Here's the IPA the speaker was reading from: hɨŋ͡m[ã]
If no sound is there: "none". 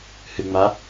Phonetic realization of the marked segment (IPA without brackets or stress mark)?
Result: a